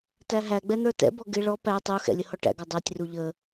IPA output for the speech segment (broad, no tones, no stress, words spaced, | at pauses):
tæɦæɡ͡bɛ n̪ə˞tɛ̰bɔ ɡɪ ɭɔ pæ tˤuxɛ̰ lʲəhɔʈæ̰ɡɔ dˤɛtʲru ʎə